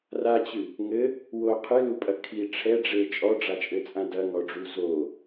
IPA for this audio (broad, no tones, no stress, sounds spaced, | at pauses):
r a t͡ɕ ɨ | ŋ ɘ | w o qʰ ɨ l u pʼ ɐ kʰ i ʈ͡ʂʰ ɛ ɖ͡ʐ e t͡ʃʼ ɔ ɖ͡ʐ a t͡ʃʼ ɘ t͡sʼ ã d ɐ ŋ ɔ ɖ͡ʐ u z o